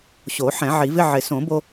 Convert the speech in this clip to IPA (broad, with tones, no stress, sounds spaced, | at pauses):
ɕ o˨˩˦ ħ ɛ̃˨˩˦ ʕ i˨˩˦ v ɪ˧˥˧ ʕ ɪ˨˩˦ s õ˨˩˦ b o˧